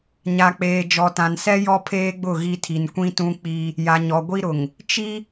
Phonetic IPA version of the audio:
ɲ a˨ k͡p eː˨ d͡ʒ ɔ˨ t ã˨ n s ɛ˦ j ɔ˦ pʰ eː˦ ɡ͡b ʊ˦˨ ɣ i˦ tʰ i˨ n kʷ ĩ˦ t ũ˦ k͡p i˦ | j a˨ ɲ ɔ˨ ɡʷ i˦ ɾ ʊ˨ ŋ | t͡ʃ i˦

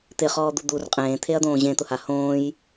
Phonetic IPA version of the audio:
t̪ ɪ χ ɔː d̪ u d̪ u r qʼ ẽː t̪ʰ e ɐ̯ d̪ õː ʑ ẽ t̪ ʊ h a h õː j

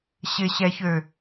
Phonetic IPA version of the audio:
ɕ ɪ ɕ ɛ ç ø

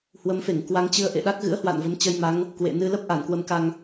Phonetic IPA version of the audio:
h w ə˨˦ m f e˧˩ ŋ k w a˧ ŋ t͡ɕ ɨ˧ ə̯ ʔ ḛ˧˨ ɗ a˦˥ k̚ ɣ ɨ̰˧˥ ə̯ h w a̰˧˨ n v ə˨˦ m t͡ɕ ə˧ j m a˨˦ ŋ | k w ḛ˧˨ n ɨ˧ l ə˦˥ p̚ ʔ a˧˩ n k w ə˧ m k a˧ ŋ

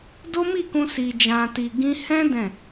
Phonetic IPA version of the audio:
d o˦ m i˦˨ k ũ˧ s i˧ d͡ʒ ã˧ t i˧ ɡ ĩ˦ h ɛ̃˦ d ɛ̃˦˨

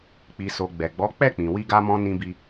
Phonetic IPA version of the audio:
k͡p i˨ s o˨ ɡ͡b ɛ˨ ɡ͡b ɔ˨˦ k͡p ɛ˦˨ k͡p ĩ˨ w i˧ ɡ a˧ m ɔ̃˧ n ĩ˧ b i˧

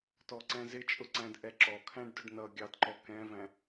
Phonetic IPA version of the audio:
t ɔ ǀ ɛ̃ z ɪ t͡ʃʼ ʊ ǀ æ̃ d ʔ ɛ ǁ ɔ kʰ æ̃ ɖ d ʊ ɖ n ʌ ɡʲ ɑ d ǃ ɔ k ɛ̃ v æ̃

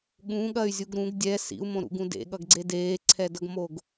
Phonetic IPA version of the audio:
ɠ ũ ɠ ɐ y̯ zʲ u ɡ ɾ ũ ɡ dʲ ɛ s ḭ u̯ m õ ɾ ṵ ɡ ũ d ḛ ɠ ʌ ɡ ɡ͡ǀ e d eː ǀʰ ɛ d ʌ ɡ m o ɡ

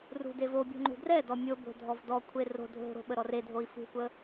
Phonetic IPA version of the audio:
r ṳ d e v o bʲ o̤ ŋ͡ǃ ṳ d r ɛ d ɔ mʲ o b o̤ dʱ ɔ v d ɔ kʷʰ e r o̤ dʱ o̤ ɾ o̤ ɓ ə ɾ ɔ r e dʱ o i̯ f ṳ kʷ ə

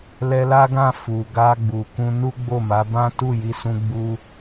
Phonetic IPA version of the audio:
l ɛ˧ l a˦ ɡ ã˦˨ f u˨ ɡ a˧ ɡ͡b u˨ k ũ˧ n u˦ ɡ͡b o˦˨ m a˨˦ b ã˦ t u˦˨ j i˨˦ s ũ˧ ɡ͡b u˧

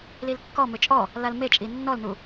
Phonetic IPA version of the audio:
l i l kː ɔ m ʏ t͡ʃʼ ɔ | l a l m e t͡ʃʼ i nː ɔ l n u

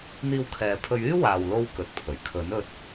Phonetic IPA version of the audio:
n̪ iː˧ w kʰ ɛː˨ pʰ ɵ˧ ɥ yː˥ w aː˨ w l o˧ w k ɵ˨ t̚ pʰ ɵ˨˩ ɥ kʰ ɵ˨˥ n ɵ˧ t̚

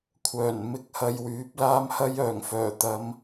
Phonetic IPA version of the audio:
kʷʰ œː˨˩ n m ɪ˧ k̚ h ɐ˧ j w yː˨˥ p̚ l aː˥ m h ɐ˥ j œː˨˩ ŋ f œː˨˩ t̪ ɐ˨˧ m

